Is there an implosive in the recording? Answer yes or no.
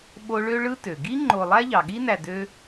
yes